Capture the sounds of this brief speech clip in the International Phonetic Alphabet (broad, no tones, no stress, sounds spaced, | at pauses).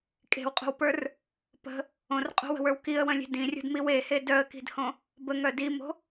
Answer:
kʼ e̤ w qʼ o̤ w p ə˞ r | p ə̤ | õ r qʼ o̤ w ə̤ w ə˞ w k i ə̯ w ə̃ lʲ e̤ d ĩ rʲ o̤ d m i w e h e d œ ə̯ k i̤ d h õ | b ə ŋ œ d i m o̤